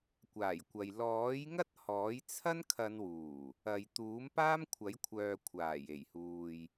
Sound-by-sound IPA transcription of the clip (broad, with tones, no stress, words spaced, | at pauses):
kʷaː˨˩jkʷɐ˨j lɔː˨˥jŋɐ˥t̚ hɔː˨˥jt͡sʰɐ˥n kʰɐ˨˧n wuː˨˩ | ɐ˨˧j t̪uː˨˥mpaː˥mkʷʰɐ˨˥jkʷʰœː˨ kʷʰaː˨˩je˨˩jhuː˨j